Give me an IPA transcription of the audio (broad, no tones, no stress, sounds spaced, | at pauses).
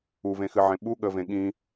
u v ẽ x ɨ ʕ ẽ ɓ u ɠ ə v ẽ ɠ ĩ